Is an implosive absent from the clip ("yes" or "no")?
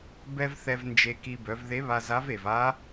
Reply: yes